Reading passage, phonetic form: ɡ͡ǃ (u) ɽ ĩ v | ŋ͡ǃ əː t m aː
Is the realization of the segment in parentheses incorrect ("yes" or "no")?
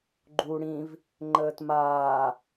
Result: no